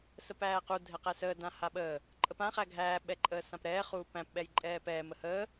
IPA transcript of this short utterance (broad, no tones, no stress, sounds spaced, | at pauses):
s ə p æː q u dʱ ɛ q ɛ s əː d ã h a ɓ əː | ǃʼ ə p ã χ æ ɡʱ æː ɓ ɛ ǃʼ əː s ã p ɾ ɛː χ uː p æ̃ p ɓ ɛ j ǃʼ ɛː p ɛː m ə h əː